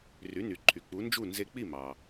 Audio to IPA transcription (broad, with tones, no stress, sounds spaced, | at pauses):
r y˩˥ n y˩ ǃʰ y˩ k͡p u˩˥ n d͡ʒ u˥˩ n z e˧ k͡p i˥˩ m ɑ˩